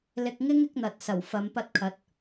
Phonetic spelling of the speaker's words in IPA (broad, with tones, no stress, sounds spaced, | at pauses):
l ɪ˧ k̚ ŋ ɪ˥ ŋ ɪ˨˥ k̚ n̪ ɐ˨ t̚ s ɐ˨˩ w f ɐ˨˧ m p ɐ˧ t̚ kʰ ɐ˨˥ t̚